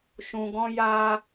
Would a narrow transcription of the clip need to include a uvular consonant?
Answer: no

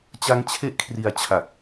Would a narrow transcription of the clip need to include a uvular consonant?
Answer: no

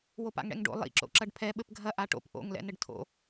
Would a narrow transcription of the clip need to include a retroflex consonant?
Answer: yes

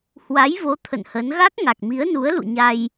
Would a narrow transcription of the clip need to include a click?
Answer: no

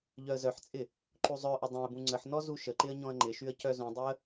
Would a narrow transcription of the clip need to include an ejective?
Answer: yes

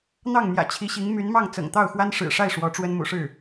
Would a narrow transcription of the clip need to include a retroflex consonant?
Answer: yes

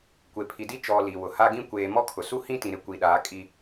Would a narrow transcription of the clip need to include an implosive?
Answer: yes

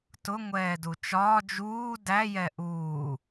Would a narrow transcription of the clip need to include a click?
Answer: no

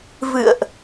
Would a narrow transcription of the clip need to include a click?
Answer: no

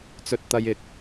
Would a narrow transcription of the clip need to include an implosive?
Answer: no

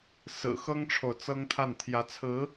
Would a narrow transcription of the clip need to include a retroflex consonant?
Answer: yes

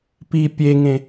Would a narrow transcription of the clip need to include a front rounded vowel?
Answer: no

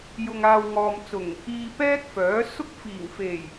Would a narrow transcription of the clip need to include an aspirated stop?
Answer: no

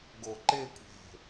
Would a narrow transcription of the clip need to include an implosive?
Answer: no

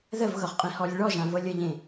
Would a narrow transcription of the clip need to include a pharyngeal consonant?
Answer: no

